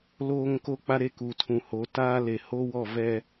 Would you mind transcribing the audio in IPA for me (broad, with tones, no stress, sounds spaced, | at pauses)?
l oː˦ ŋ k o˦ k͡p a˦ ɾ e˦ k u˨ tʰ ũ˨ h o˨˦ t aː˦ l e˨ h o˦ w ɔ˦˨ v ɛ˦